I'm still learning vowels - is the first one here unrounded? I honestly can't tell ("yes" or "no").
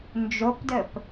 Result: no